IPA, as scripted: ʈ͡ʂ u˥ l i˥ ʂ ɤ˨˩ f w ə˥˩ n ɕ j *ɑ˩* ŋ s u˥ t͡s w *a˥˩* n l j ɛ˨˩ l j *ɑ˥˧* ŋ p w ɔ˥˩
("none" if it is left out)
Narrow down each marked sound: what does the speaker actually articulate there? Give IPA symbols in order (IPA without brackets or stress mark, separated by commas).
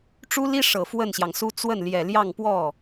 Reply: ɑ˩, ə˥˩, ɑ˥˧